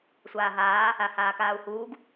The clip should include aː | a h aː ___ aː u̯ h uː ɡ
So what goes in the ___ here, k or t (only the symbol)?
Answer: k